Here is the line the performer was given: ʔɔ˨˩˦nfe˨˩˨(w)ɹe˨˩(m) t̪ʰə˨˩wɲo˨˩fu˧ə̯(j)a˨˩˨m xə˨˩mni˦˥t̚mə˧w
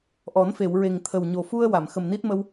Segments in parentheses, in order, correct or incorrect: correct, incorrect, incorrect

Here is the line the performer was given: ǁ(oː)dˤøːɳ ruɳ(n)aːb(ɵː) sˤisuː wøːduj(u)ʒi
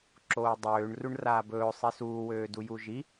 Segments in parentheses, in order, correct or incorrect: correct, incorrect, correct, correct

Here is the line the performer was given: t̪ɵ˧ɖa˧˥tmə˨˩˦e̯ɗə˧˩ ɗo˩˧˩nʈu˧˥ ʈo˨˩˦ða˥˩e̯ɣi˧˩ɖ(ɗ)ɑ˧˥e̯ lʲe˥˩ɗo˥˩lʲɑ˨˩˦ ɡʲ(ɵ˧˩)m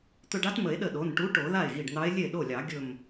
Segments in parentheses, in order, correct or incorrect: incorrect, correct

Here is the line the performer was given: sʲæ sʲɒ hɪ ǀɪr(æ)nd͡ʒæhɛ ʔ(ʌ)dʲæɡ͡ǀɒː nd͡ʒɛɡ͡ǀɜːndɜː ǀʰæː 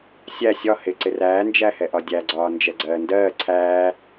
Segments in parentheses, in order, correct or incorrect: incorrect, incorrect

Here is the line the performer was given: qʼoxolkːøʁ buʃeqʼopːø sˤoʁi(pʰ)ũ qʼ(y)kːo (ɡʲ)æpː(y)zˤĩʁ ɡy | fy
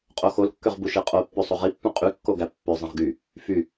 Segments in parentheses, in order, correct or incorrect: incorrect, correct, incorrect, incorrect

